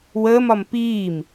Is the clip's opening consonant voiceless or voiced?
voiced